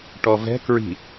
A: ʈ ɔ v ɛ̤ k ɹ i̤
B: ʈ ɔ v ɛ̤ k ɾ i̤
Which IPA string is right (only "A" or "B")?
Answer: A